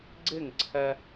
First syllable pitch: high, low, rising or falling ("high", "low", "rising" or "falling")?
falling